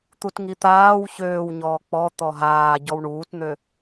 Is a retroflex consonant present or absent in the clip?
present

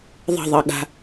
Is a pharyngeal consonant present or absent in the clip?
absent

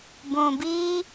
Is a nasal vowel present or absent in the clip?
present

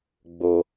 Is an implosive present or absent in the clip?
absent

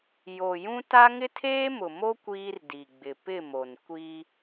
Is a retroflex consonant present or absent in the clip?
absent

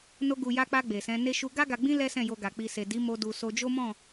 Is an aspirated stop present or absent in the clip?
absent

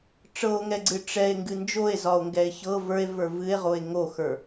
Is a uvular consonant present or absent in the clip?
present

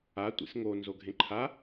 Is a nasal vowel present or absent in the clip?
present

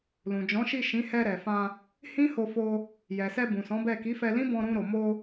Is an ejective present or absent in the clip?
absent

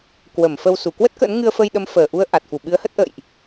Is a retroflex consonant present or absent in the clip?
absent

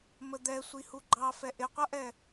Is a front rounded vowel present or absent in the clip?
absent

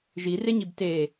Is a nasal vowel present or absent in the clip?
absent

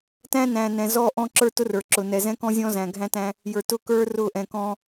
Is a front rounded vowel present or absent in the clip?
absent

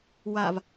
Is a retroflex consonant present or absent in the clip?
absent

